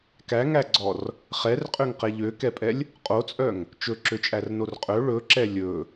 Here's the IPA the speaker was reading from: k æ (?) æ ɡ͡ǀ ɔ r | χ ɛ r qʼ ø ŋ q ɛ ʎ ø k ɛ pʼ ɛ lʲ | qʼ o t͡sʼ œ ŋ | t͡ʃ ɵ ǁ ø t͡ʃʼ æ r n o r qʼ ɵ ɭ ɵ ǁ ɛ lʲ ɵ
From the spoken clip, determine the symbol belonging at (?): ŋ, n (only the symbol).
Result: ŋ